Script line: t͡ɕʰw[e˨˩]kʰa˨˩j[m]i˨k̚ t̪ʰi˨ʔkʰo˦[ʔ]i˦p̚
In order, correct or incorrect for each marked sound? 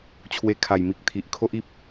incorrect, correct, correct

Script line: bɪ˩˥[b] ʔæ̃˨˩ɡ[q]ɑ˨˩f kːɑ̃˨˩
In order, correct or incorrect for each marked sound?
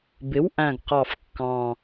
incorrect, correct

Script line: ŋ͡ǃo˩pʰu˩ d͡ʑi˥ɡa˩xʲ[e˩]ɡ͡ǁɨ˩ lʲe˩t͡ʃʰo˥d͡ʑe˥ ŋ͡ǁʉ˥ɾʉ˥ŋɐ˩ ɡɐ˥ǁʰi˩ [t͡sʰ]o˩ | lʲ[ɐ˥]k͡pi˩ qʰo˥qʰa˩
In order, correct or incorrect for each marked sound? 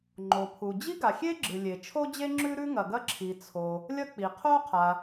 incorrect, correct, correct

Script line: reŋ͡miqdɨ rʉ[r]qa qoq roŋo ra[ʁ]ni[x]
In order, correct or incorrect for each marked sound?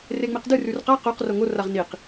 correct, correct, incorrect

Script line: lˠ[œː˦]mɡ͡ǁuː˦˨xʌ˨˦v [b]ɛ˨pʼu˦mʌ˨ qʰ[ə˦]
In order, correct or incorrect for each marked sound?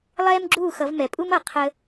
incorrect, incorrect, correct

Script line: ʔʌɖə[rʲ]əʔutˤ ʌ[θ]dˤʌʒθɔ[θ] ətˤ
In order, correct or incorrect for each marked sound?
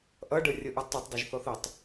correct, incorrect, correct

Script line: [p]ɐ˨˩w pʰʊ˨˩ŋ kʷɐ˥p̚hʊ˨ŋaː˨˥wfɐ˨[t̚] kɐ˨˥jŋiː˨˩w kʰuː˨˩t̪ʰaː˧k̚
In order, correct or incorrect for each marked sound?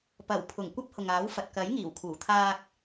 correct, correct

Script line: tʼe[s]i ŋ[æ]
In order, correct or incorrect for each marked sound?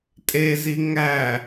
incorrect, correct

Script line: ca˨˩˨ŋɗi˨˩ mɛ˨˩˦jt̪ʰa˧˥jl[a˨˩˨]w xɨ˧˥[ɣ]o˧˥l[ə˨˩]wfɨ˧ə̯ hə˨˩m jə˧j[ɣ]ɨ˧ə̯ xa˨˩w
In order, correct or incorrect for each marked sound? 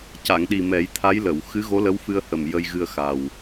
incorrect, correct, incorrect, correct

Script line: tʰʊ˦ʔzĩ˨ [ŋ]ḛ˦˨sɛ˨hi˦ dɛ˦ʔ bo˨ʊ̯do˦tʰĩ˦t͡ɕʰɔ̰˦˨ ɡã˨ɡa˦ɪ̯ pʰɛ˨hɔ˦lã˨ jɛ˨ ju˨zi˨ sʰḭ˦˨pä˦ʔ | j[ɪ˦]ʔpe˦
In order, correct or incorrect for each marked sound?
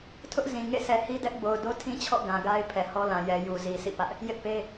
correct, correct

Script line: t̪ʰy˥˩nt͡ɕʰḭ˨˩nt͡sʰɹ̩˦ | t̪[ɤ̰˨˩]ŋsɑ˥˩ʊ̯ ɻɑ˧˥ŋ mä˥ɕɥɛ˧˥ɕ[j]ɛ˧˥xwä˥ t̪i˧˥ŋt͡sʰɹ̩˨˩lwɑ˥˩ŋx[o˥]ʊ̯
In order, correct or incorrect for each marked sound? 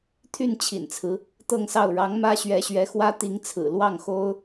incorrect, incorrect, correct

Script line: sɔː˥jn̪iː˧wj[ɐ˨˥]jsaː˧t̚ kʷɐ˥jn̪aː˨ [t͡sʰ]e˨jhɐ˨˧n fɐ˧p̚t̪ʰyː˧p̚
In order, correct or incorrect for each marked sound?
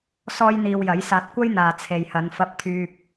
correct, correct

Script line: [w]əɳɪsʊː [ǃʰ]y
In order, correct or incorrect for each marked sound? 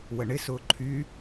correct, correct

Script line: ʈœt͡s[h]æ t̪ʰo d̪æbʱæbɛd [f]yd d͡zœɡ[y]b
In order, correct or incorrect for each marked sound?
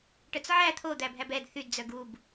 incorrect, incorrect, incorrect

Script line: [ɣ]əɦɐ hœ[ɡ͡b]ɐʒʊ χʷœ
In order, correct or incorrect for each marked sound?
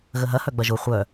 correct, correct

